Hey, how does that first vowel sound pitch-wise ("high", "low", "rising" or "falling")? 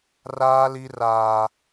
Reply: high